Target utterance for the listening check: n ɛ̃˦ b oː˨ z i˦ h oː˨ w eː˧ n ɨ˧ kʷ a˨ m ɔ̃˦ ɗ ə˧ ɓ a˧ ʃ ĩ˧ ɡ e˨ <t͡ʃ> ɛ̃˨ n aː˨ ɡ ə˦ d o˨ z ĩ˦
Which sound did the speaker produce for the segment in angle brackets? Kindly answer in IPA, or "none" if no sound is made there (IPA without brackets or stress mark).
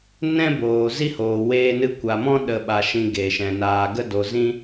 ʃ